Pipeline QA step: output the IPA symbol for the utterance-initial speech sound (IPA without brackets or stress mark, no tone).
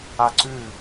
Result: a